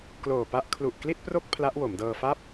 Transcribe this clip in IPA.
k l oː˨˩ p a˦˥ ʔ kʰ l u˨˩ ʔ k l i˥˩ t̚ p r o˥˩ k̚ pʰ l a˦˥ ʔ w o˩˦ m d ɤː˧ f a˥˩ p̚

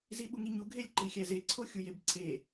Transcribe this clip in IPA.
z i ɓ u ŋ i ɲ u ɡʱ e lʲ ǃ i xʲ æ z e ǀʰ o xʲ u j e b ǀʰ e

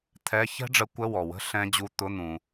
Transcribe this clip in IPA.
t̪ʰ ɛ˧˥˧ ç ɛ̤˦˥ ɖ͡ʐ ə˨˥ kʷ ə˧˥˧ w ɔ˩ w ə̤˧˥˧ ɬ ɛ̃˦˥ d͡ʑ u˧˥˧ t̪ ʊ˧˥˧ n̪ ũ˩

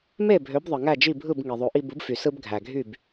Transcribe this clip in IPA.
m e˥˩ bʱ ø˩˥ b ðˤ ɯ˩ ŋ æ˥˩ d͡ʒ i˥˩ bʱ ɯ˥˩ b ŋ i˩ ðˤ o˩˥ ʔ i˧ b ɯ˩˥ b f y˩ s ɯ˧ b ɡʱ æ˩ ɡʱ y˥˩ b

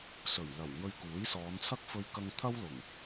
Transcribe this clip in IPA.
s ɵ˨˩ ɥ l ɐ˨˩ w ŋ ɵ˧ ɥ k uː˨˥ j s ɔː˨˧ n t͡sʰ ɐ˥ k̚ f ɵ˧ ɥ k ɐ˧ ŋ t̪ʰ ɐ˥ w l ʊ˨˩ ŋ

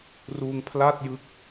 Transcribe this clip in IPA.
r uː˧ ŋ pʰ l a˥˩ t̚ j ɯ˥˩ k̚

